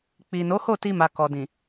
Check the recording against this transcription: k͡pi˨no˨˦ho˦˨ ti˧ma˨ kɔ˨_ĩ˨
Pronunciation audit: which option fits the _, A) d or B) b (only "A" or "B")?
A